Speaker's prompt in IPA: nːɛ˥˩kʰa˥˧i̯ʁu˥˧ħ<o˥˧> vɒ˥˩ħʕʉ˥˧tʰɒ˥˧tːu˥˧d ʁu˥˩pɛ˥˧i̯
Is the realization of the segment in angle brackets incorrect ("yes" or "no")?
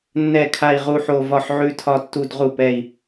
no